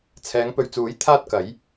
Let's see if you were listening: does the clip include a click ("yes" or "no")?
no